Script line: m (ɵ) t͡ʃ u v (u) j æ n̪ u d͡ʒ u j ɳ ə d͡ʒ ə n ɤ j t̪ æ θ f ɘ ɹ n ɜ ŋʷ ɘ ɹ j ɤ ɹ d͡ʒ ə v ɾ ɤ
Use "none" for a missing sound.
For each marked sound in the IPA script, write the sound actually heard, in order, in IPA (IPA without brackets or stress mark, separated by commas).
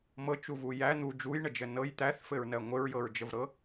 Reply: ɤ, u